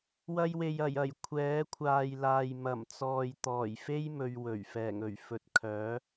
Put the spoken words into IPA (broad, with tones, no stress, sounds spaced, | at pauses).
w ɐ˧ j w e˨ j ɐ˨˩ j ɐ˨˩ j kʷʰ ɛː˨˥ kʷʰ aː˨ j l aː˨ j m ɐ˨˩ m t͡s ɔː˨ j t̪ ɔː˨˩ j f e˥ j m ɵ˧ ɥ w ɵ˨˩ ɥ f ɛː˨˩ ŋ ɵ˨˩ ɥ f ɵ˨ t̚ kʰ œː˨˥